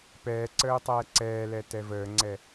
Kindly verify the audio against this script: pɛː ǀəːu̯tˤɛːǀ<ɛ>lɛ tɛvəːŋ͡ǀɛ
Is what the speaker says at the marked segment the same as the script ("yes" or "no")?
no